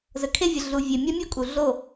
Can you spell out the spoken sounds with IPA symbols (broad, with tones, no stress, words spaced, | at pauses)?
zə˨kʰe˦vʲə˨ ɮu˨ vʲe˨mʲa˦mʲo˦ kʼu˨ɮo˦˨